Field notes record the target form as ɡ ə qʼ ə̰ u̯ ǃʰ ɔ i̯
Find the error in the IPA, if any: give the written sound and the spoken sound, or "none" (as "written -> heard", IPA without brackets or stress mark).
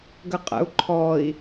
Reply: none